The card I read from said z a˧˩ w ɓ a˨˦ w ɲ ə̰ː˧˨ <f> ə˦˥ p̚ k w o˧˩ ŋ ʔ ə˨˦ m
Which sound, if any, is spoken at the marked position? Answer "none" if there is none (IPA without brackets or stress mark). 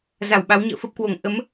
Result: f